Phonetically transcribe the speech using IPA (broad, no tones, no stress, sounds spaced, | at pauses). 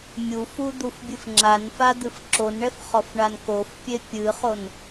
mʲ u f u d̪ u f bʲ ɨ f ŋ͡ǁ a n f a d̪ ɨ f ǁ o n ɳ ɛ f χ ɔ f ɳ a n k o f pʲ e pʲ ɨ χ o n